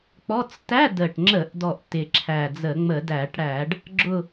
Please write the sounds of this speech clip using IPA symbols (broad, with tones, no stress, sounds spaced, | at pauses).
k͡p ɔ˧˥˧ t͡s t æ˧˥˧ d ə˨˩ ʈ ŋ͡ǁ ə˧˩˧ ʔ d ɔ˨˩ ʔ t ɪ˨˩ ǁʰ æ˨˩ d͡z ə˧˩˧ ŋ͡m ə˧˩˧ d æ˧˩˧ ʈ ɽ æ˧˩˧ ɖ | ɡ͡ǁ ʊ˦˨